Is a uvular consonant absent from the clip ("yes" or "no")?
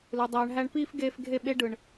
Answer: yes